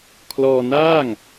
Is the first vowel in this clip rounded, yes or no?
yes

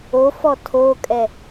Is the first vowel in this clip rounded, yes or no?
yes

